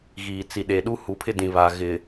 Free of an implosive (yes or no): no